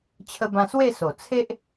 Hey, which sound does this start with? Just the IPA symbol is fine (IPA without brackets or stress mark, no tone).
t͡ɕʰ